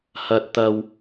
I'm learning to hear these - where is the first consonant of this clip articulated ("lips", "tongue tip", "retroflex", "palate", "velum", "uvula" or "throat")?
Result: throat